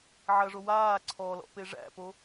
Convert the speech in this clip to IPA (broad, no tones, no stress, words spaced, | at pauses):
ʕɐʐo waː ǀʰɔlɔ̰ peʐæ̰po